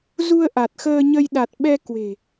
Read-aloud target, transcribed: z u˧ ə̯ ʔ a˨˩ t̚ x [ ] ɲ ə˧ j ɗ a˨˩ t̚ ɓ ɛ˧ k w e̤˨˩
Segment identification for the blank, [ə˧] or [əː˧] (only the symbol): əː˧